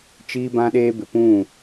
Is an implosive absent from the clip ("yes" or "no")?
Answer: no